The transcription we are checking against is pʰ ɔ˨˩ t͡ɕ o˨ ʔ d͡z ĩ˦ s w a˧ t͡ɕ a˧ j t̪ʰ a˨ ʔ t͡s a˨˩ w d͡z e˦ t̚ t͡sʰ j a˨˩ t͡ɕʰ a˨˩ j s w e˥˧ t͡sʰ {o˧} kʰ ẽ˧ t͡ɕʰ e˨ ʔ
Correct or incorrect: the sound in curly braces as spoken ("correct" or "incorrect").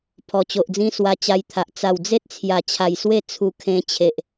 incorrect